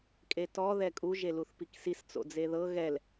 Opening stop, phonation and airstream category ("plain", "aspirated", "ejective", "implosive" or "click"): ejective